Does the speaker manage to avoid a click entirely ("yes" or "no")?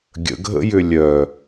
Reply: yes